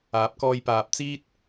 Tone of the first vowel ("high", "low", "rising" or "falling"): rising